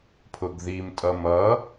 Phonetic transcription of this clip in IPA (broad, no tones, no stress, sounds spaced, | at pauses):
pʰ ʊ ɡ ð i m tʼ ʌ m ʌ